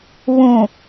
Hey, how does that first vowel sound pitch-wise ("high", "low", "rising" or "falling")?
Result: low